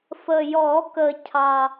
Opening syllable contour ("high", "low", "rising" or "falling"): low